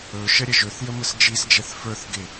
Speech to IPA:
ɵ ʃ ə ɾʲ ə ʒ ɵ θ j ə m ə s d͡ʒ i s d͡ʒ ɛ θ f ə˞ θ ɡ ɪ

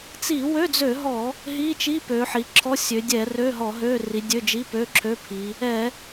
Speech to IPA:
t͡s i˧˩˧ w ø˧˥˧ d͡z ø˧˩˧ ɦ ɔ˧˩˧ | ɦ i˧˥˧ t͡ʃ i˧˥˧ p ø˩˧ ħ i˩˧ ǁʰ ɔ˧˥˧ sʲ ø˩˧ dʲ ɛ˧˩˧ r ø˧˥˧ ɦ ɔ˧˩˧ ɦ ø˧˥˧ r i˩˧ dʲ ø˧˥˧ d͡ʒ i˧˥˧ p ø˧˥˧ ǁʰ ø˧˥˧ pʰ i˩˧ | ɛ˧˩˧

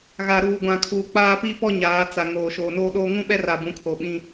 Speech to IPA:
ɣ a˨ ɾ uː˨ ɡʷ ã˨ kʰ uː˨ k͡p aː˦ p i˦ p ɔ˦ ɲ aː˨˦ t͡s a˨ ŋ oː˨ ʃ oː˨ n oː˦ ɗ oː˦ ŋ ũ˦ ɓ ɛ˦ r a˨ b ũ˨˦ kʰ o˨ ɓ ĩ˦

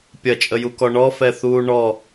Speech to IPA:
pʲ ɐ t͡ʃʼ ə j u k ɔ ɳ ɔ f ɛ θ uː ɳ ɔ

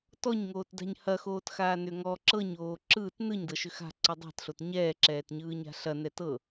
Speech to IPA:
t ɔ ɲ ŋ oː t d a̤ ɲ h ɐ x oː t x aː n ʏ ŋ ɔ ǁ ɤ ɲ oː ǁ ɯː t n ɯ ɲ d ɤ ʃ ʏ x a̤ ǀ ə dˤ a̤ t ɬ o t ɲ ɛː ǁ ɛː t ɲ ɯː ɲ a̤ ɬ ɐ n ɛ t ɤ

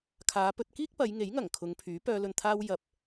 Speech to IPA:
kʰ aː˨˧ p ɵ˧ t̚ k iː˥ k̚ p ɐ˨˧ j ŋ e˨˥ j ŋ ɐ˨˩ ŋ kʰ ʊ˨˧ ŋ pʰ yː˨˥ p œː˧ l ɵ˨ n t̪ʰ aː˧ w j ɐ˨ p̚

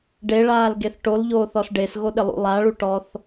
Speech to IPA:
ɖ e ɭ aː l ɡ e θ ʈ o l ʎ oː θ ɔ s ɖ e s ɣ o ɗ ɪ lˠ ṵ lˠ a ɭ u ʈ ɔ θ

